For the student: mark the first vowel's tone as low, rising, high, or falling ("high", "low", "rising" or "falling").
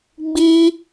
high